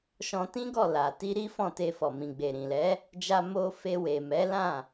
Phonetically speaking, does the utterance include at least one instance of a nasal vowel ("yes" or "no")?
yes